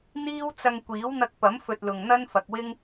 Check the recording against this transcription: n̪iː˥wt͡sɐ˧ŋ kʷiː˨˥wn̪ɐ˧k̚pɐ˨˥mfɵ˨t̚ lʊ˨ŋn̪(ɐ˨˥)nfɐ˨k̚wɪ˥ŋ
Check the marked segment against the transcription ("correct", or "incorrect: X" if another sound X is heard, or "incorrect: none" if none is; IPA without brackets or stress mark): incorrect: ɐ˥